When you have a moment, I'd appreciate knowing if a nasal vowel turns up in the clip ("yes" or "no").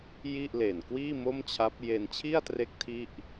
no